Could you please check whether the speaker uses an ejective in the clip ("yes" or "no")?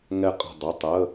yes